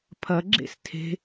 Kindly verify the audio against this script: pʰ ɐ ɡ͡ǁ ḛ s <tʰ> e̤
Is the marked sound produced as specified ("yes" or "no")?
yes